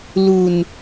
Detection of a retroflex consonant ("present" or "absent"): absent